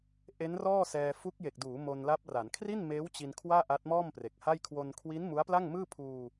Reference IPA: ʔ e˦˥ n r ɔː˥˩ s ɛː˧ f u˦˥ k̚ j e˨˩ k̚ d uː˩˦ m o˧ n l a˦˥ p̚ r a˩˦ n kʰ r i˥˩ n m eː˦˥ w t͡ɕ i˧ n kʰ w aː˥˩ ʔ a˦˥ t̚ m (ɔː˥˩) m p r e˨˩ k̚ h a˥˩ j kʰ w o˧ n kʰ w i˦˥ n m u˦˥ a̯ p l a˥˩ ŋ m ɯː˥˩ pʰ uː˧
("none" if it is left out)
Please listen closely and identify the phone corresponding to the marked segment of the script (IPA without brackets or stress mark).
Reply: ɔː˥˩